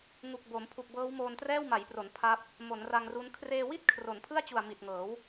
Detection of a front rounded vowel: absent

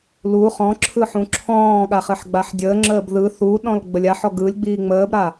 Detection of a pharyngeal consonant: present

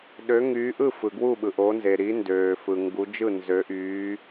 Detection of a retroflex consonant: absent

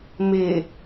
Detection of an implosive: absent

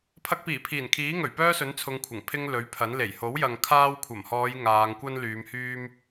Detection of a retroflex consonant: absent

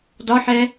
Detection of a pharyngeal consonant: present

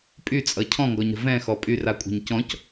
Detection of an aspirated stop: present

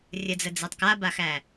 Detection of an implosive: absent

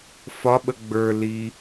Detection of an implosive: present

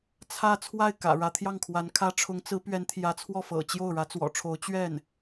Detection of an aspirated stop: present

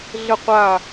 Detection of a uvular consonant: present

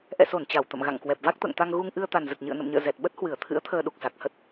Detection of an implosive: present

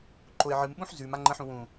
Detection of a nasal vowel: present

